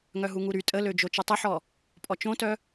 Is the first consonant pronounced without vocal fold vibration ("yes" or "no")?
no